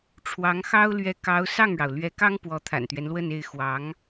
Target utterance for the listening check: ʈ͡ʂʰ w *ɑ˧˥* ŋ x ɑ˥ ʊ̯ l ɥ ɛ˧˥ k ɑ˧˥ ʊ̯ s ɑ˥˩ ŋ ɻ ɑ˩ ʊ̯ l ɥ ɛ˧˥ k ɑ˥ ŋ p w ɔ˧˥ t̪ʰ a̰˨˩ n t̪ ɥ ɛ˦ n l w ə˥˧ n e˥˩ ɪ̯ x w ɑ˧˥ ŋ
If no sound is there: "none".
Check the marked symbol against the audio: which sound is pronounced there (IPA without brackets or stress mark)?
ɑ˧˥